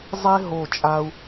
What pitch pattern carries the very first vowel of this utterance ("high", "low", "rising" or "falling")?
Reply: high